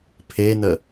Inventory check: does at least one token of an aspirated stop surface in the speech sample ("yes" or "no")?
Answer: yes